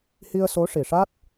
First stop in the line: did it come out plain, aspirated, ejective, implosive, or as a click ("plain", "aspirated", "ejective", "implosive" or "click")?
plain